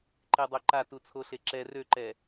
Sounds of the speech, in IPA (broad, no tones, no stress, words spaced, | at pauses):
ǃedˤøǃa tut͡sʰoɬeǁɛ røǃɛ